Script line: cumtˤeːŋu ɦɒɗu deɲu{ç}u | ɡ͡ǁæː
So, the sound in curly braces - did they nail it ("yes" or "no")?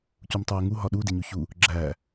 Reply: yes